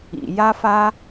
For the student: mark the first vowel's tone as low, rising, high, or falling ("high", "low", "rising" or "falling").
low